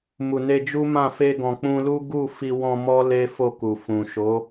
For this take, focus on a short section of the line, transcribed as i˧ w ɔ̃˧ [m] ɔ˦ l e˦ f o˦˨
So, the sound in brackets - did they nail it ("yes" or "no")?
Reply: yes